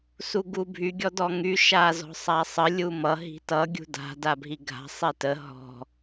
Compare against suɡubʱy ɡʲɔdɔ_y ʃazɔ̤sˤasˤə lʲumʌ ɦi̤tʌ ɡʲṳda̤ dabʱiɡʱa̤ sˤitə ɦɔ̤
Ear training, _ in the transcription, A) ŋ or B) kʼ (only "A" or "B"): A